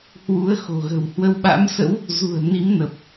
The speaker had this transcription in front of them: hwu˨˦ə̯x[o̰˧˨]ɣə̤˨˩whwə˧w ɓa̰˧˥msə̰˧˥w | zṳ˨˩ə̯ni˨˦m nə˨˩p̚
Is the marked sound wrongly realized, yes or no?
yes